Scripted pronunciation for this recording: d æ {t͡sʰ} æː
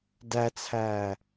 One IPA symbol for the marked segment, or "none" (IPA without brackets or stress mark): t͡sʰ